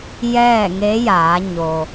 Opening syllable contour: falling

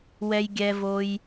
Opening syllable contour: high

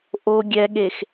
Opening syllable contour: low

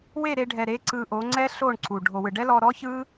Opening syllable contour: falling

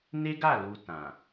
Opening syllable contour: high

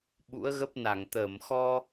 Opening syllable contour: rising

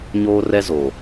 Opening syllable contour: high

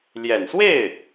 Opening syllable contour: low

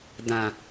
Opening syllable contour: low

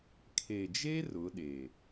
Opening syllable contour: low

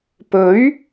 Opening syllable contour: rising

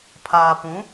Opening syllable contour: low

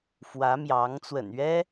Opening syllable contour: rising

